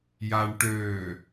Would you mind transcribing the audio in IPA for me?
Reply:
j a ɳ ʈ øː

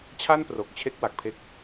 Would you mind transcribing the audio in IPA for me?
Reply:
t͡ɕʰ a˥˩ n p r o˨˩ k̚ t͡ɕʰ e˥˩ k̚ w a˨˩ k̚ pʰ e˦˥ k̚

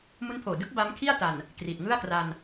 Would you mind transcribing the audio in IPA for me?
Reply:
m u˦˥ n pʰ oː˨˩ d ɯ˦˥ k̚ b a˦˥ m kʰ i˥˩ a̯ t a˨˩ n | k r i˨˩ t̚ ŋ ɯ˥˩ a̯ k r a˧ n

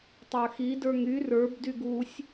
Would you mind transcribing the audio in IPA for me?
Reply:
tˤ ə˞ x i d ə˞ ŋ y r ə˞ b d y ɡ u sʲ

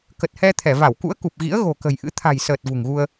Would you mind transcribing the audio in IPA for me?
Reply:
k ə˨˩ t̚ h ɛ˧ t̪ʰ ɛ˧˩ v a˧˩ w k ṵ˧˥ ə̯ k u˨˩ p̚ ɣ ḭ˧˥ ə̯ ɣ o̤˨˩ k ə̤˨˩ j ʔ ɨ̰˧˥ t̪ʰ a̤˨˩ j s əː˨˩ t̚ v ṳ˨˩ ŋ ɣ u˧ ə̯

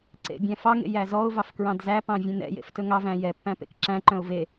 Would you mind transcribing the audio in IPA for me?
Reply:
ǀ ḛ bʲ æ̃ f ɑ ŋ ḛ j æ z ɔ ʊ̯ v ɑ f k ɹ ɑ̃ d z æ p ɑ̃ vʲ ẽ n ɛ̰ j ḛ f t ɵ ŋ ɑ v æ̃ j ɛ pː æ̃ p ḛ k ǁ æ̃ ǃ œ̃ ʊ̯ v e

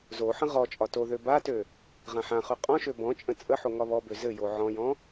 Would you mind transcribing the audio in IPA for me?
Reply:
z o ħ ə̃ ʁ ɔ t͡ʃʼ ɒ t o ð ø b a t ø | ʁ ã ħ ã χ ø qʼ ɔ̃ ʃ ø b ɔ̃ t͡ʃʼ ə̃ t͡sʼ ə ħ o ŋ ɒ β ɔ b ø z ɘ j o ʕ ɔ̃ j ɔ̃

